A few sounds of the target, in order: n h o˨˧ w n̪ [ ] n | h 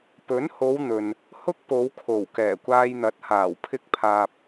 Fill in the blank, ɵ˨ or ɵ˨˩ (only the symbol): ɵ˨